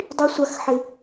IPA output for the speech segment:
dˤ i˦ sʷ a˦ x ħ ɪ˦

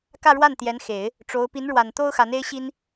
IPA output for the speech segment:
k ä˥˧ ɻ w a˥˩ n t̪ j ɛ˧˥ n x e˨˩˦ ɪ̯ | ʈ͡ʂ o˧˥ ʊ̯ p i˧˥ n ɻ w a˨˩ n t̪ o˥ ʊ̯ x a˧˥ n e˥ ɪ̯ ɕ i˥ n

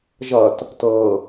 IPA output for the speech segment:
ʒ ʌ t | t ɤ

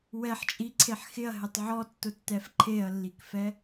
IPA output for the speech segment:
w ɛ ħ t͡ʃʼ i ǀʰ e ħ x ɪ ɐ̯ ɦ ɪ tˤ ʕ ɔ tː ʊ tː ɛ f ǃʰ e ɐ̯ lː i k f ɛ

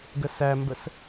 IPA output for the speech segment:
ɡ ə s æ m b ə s

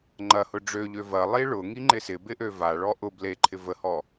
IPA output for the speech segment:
ŋ͡ǃ ɐ h ʊ ɖ͡ʐ ø ʎ ø v ɐ lˠ i ɭ ʊ ŋ i ŋ͡ǃ ɪ s ɪ b ɪ ʔ ø v a ɭ ɔ ʔ ʊ b l e ǃʰ ɪ v ə h ɔ

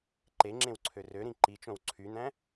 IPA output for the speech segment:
ǃ e ŋ͡ǁ ẽ w ǀʰ ø r ø ɾ ĩ ǃ i t͡ʃ õ w ǀʰ y n̪ æ̃

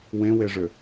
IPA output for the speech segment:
w ẽ w e ʐ ʏ

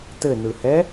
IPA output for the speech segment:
t ɘ n ɯ h ɛ

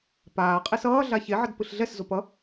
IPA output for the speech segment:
p aː qʼ i s ʌː ɮ a ç e ʕ ʌ d p ɯ ɬ ɮ ɛ s z o p ʌ

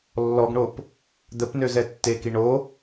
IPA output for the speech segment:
lː ɔ ɡ ɳ o p | d̪ ə p n ø z ɛ tː e k i ɳ o

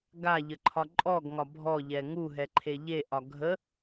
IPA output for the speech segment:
ɡ a ʎ ə ǃʰ ɒ ǃʼ ɔ ɡ ŋ ɒ bʱ ɔ ʎ ɛ ŋ u ɦ ɛ ǃʰ e ʎ e ʔ ɒ ɡʱ ə

